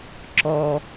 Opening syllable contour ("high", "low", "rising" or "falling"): low